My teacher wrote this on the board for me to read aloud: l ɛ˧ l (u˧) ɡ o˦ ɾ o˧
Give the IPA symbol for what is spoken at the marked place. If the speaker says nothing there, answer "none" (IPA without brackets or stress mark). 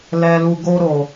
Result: u˧